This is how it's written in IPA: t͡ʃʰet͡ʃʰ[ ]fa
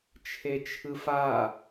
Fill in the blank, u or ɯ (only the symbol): ɯ